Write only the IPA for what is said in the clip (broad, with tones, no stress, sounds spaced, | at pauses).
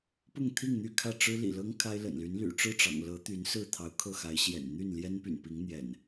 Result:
p ʊ˥˨ ŋ t̪ʰ i˥˨ ŋ n̪ y˥˨ kʰ ä˥˨ ʈ͡ʂ ɻ̩˦ l ḭ˨˩ l ɤ˦ ŋ kʰ a˦ ɪ̯ l ə̰˨˩ n l y˨˦ n l y̰˨˩ ʈ͡ʂ ɻ̩˥˨ ʈ͡ʂ ɑ̰˨˩ ŋ l ɤ˨˦ t̪ y˨˦ n s ɹ̩˥˨ t̪ʰ ɑ˨˦ ʊ̯ kʰ ɤ˥˨ x a˨˦ ɪ̯ ɕ j ɛ̰˨˩ n n̪ y˥˨ n l j ɛ˦ n p y̰˨˩ n p i˨˦ ŋ n̪ j ɛ̰˨˩ n